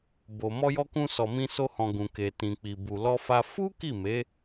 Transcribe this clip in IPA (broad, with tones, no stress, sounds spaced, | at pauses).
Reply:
b o˨ m ɔ˧ j ɔ˧ k ũ˧ s ɔ˨ m ĩ˧ s o˧ h ɔ̃˨ ɡ ũ˨ k e˨ t ĩ˨ k͡p i˨ b u˨ l ɔ˧ f a˧ f u˦ k i˦˨ m e˨˦